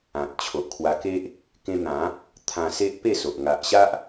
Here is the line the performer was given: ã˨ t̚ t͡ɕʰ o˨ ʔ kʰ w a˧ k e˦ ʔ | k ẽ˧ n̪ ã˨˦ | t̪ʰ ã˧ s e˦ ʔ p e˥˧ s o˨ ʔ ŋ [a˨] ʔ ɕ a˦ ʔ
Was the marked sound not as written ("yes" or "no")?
no